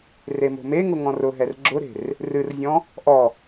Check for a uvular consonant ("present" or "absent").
absent